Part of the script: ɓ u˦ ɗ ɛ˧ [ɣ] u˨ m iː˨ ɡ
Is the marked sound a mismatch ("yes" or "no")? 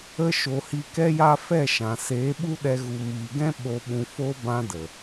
no